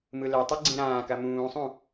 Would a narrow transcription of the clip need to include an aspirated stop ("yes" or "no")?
no